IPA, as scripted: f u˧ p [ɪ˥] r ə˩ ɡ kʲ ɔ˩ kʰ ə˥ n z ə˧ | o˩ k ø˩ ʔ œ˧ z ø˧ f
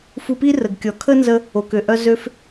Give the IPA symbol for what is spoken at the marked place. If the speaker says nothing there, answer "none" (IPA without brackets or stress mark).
i˥